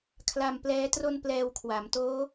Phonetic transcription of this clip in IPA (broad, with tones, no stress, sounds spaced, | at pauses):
kʰ l a˧ m p l ɛː˦˥ t r o˥˩ n p l ɛː˧ w kʰ w a˩˦ m t oː˦˥